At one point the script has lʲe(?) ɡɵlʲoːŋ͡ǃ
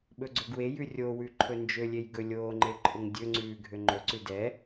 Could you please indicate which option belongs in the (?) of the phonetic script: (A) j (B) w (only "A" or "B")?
A